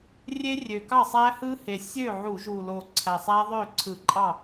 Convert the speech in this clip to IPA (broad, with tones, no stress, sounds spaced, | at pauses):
rʲ e˦˥ rʲ ø˨˩ k ɑ˥˩ sˤ æ˦˥ h ɯ˦˥ h e˨˩ sʲ ø˥˩ ʕ u˧˩˧ ʒ u˨˩ l o˨˩ ǀʰ æ˨˩ sˤ æ˦˥ ðˤ ø˥˩ ǀʰ ɯ˧˩˧ ǃʼ ɑ˥˩